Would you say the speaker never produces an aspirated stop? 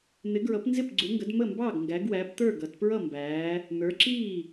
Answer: yes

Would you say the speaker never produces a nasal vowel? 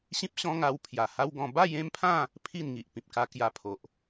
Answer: no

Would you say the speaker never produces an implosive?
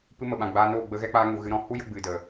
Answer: no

